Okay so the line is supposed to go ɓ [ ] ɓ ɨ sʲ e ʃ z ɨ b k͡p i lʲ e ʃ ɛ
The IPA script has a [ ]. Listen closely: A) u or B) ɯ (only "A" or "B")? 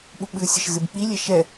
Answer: A